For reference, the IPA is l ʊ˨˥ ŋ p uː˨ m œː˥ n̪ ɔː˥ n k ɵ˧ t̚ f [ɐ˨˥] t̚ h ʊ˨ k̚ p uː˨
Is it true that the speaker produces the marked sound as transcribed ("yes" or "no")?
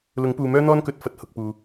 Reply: yes